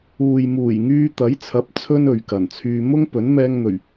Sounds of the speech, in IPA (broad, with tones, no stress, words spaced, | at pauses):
uː˨jmuː˨˩j ŋyː˧t̪ɐ˨˥jt͡sʰɐ˨˥p̚ t͡sʰɵ˥nɵ˨ɥkɐ˨˩nt͡sʰyː˧ mʊ˥ŋ pɵ˨˥nmɛː˧ŋn̪ɵ˨˩ɥ